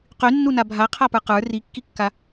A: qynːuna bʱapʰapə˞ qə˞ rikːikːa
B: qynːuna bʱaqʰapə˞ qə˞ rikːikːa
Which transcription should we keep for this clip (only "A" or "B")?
B